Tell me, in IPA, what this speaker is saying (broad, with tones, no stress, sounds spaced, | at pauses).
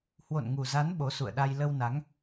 h w o̰˧˨ n ŋ u˨˩ z a˨˦ n ɓ o˨˦ s ṵ˧˨ ə̯ ɗ a˧ j l ə˧ w n a˨˦ ŋ